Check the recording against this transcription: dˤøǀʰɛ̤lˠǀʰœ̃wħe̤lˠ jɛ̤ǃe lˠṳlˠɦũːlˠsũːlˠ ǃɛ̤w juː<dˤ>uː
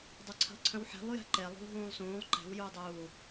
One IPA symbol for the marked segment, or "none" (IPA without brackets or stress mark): dˤ